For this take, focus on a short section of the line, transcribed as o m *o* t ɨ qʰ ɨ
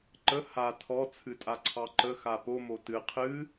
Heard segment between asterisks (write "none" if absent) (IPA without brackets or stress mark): o